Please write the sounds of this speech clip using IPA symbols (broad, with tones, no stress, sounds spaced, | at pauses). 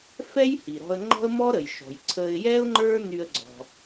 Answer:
f ɛ˥ j h i˩ ɾ ɔ̤˧ ə̯ ŋ͡ǃ ɔ̤˥ ə̯ m ɔ˥ ɾ ə˩ j ʃ ɔ̤˩ j ǀʰ ə˧ ɪ̯ j ɛ˥ ʊ̯ ŋ͡ǃ ə˞˥ n y˧ ə̯ ɡ͡ǀ ɔ̤˩